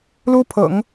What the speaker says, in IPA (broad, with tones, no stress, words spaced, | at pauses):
lu˥pʰɤ̰˨˩˦ŋ